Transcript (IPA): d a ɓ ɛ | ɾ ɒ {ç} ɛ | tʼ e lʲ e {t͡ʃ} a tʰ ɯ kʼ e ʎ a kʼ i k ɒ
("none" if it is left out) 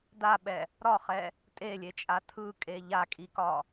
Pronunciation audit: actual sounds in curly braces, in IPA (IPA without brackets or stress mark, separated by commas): χ, t͡ʃʼ